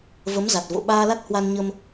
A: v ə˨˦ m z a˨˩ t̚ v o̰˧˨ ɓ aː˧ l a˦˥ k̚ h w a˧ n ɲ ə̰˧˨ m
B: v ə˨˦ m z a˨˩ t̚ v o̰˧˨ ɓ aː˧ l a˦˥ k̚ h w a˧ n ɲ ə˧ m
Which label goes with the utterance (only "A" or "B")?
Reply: B